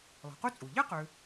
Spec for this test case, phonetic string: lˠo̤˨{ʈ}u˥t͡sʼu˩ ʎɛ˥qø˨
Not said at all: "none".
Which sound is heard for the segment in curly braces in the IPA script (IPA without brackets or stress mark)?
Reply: q